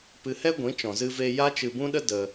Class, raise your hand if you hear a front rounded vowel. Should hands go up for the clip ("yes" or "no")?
no